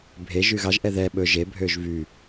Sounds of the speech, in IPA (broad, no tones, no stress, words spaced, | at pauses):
bʱeʒ yɣɑʒ ʔɛðɛ ɓɵ ʒe bʱøʒvy